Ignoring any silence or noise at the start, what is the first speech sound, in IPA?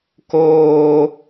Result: k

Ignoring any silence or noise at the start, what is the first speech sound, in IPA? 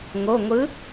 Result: ŋ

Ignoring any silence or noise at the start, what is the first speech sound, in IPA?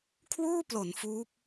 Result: kʰ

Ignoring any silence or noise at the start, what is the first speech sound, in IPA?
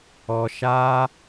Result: ɔ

